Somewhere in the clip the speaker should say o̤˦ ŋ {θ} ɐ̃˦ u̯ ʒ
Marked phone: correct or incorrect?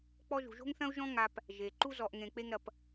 correct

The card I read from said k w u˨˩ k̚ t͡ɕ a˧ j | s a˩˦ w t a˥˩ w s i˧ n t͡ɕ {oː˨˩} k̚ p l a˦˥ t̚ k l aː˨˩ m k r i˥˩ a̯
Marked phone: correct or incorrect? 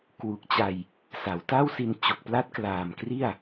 incorrect: o˨˩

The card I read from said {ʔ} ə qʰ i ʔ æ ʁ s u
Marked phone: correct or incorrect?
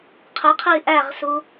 incorrect: qʰ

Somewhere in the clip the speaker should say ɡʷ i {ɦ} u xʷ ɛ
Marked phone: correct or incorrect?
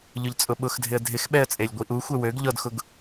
incorrect: ʔ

